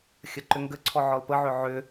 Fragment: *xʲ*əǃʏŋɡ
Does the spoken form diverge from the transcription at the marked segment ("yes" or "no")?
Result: no